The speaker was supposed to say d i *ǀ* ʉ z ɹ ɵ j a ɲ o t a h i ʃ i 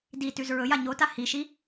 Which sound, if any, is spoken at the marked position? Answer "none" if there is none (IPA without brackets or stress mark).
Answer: t